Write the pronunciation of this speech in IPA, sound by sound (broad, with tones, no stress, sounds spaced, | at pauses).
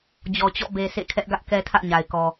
d͡ʑ ɔ˨ t͡ɕ ɔ̰˦˨ b e˨ sʰ ḛ˦˨ kʰ ɛ˦ ʔ ɡ ä˦ ʔ k ɛ˦ tʰ ä̰˦˨ ɲ a˨ ɪ̯ k ɔ˨